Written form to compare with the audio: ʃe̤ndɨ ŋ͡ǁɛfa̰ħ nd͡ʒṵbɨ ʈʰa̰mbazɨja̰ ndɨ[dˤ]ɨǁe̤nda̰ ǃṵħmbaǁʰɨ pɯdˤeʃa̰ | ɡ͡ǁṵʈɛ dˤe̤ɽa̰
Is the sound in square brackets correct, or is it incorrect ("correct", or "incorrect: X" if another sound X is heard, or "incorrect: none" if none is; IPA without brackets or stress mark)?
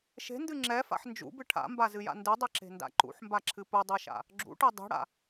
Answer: correct